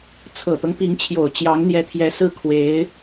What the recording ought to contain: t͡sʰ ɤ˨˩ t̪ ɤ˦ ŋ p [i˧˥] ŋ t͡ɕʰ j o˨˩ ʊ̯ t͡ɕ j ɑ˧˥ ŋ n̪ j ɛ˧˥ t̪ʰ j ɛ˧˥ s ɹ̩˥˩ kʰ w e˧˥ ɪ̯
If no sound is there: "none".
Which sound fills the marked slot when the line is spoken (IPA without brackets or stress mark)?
i˧˥